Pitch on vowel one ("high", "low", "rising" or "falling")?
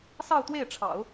falling